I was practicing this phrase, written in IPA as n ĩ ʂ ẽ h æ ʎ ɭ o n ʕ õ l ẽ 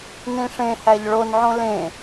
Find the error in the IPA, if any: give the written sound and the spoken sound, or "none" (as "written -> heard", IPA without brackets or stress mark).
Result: none